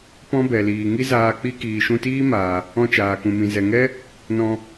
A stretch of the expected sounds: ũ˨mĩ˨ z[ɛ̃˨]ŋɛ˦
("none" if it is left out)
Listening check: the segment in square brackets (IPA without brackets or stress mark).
ɛ˨